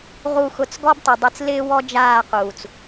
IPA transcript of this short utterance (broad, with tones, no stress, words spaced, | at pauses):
ʁu˦˨xʊ˦˨t͡s ɡɔ˦btˤu˨dˤi˧t͡s lɪː˦wɔ˦ d͡ʒaː˦˨quː˨t͡s